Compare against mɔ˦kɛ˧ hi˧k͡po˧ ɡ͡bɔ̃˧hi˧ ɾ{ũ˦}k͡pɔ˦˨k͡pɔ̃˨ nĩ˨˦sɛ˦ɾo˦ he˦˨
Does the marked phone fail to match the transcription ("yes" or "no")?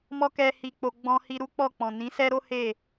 yes